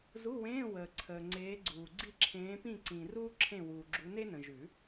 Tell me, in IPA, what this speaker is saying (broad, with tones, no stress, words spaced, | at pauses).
zu˧˥˧wẽː˧˥˧ wəː˨ǀʰəː˨ŋ͡ǀeː˨˦ɡ͡ǀuː˨ ɡ͡ǀi˦˨ǁʰẽː˨˦pĩ˦˨ ǀĩ˨ ruː˥ǁʰẽ˦˨wuː˨ɡ͡ǁu˨˦ ne˥nə̃˨ʒʉ˨˩˦